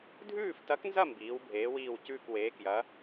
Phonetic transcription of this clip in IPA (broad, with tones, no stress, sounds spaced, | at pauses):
dʱ ʉː˥˧ f t ɐ˧˥ k n z ɐ˥˧ m b iː˧˥ w bʱ eː˧˥ w iː˥˧ w c ʉː˥˧ k w eː˧˥ k j ɐ˧˥